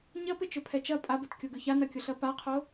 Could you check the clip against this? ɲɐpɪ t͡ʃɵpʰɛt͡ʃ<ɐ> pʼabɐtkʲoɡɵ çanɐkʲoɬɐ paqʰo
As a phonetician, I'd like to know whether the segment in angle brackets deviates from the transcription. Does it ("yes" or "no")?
no